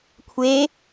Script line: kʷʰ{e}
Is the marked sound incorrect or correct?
correct